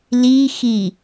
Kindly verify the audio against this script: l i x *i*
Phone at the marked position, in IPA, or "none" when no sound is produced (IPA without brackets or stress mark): i